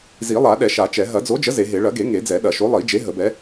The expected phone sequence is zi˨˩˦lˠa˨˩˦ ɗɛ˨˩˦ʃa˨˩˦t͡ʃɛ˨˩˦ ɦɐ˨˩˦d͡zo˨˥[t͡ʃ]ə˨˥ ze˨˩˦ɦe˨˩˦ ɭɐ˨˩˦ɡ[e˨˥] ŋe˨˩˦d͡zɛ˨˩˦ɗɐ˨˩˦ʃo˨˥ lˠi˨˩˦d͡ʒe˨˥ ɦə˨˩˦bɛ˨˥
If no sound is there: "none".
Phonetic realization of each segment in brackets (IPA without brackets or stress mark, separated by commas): d͡ʒ, e˨˩˦